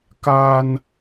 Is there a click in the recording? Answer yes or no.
no